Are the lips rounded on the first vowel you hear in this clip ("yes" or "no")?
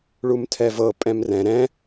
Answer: yes